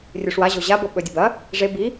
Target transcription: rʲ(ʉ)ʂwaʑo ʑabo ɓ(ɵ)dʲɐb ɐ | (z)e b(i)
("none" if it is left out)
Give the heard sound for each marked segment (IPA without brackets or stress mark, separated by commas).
ʉ, ɵ, ʐ, i